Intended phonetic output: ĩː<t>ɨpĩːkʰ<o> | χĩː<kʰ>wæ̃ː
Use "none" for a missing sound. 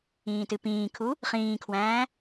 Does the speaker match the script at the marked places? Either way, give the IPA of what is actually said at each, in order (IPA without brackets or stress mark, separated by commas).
t, u, kʰ